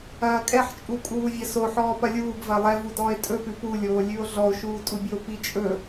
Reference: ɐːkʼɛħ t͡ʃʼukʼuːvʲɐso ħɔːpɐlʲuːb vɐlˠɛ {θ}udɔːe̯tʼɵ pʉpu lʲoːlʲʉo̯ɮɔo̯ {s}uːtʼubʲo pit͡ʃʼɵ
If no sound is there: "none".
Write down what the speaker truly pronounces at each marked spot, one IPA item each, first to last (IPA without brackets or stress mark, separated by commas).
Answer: v, ʃ